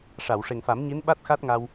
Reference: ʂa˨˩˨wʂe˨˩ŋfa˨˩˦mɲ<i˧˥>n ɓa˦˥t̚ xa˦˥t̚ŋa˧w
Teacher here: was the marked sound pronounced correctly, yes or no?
yes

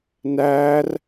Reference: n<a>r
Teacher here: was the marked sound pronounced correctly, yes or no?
no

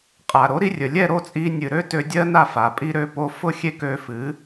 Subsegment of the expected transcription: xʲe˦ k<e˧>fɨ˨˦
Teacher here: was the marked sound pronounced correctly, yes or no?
no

